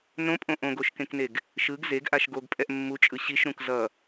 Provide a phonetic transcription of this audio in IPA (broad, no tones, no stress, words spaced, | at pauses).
nõpʼõ ʔõɡoʃkẽkneɡ | ʃɯɡ zeɡʔaʃ ɡoɡpʼɛʔ mːut͡ʃʼɯ ɕiʃɾũk zʌ